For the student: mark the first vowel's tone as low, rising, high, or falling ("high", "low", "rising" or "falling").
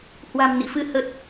low